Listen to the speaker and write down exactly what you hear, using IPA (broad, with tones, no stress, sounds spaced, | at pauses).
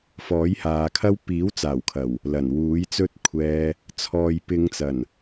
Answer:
f ɔː˨˥ j h aː˨˧ kʰ ɐ˥ w p iː˨˥ w t͡s aː˨˩ w kʰ ɐ˨˩ w | l ɐ˨˩ n w uː˨˥ j t͡s ɵ˥ t̚ kʷʰ ɛː˧ | t͡sʰ ɔː˨ j p ɪ˨˧ ŋ t͡s ɐ˨˩ n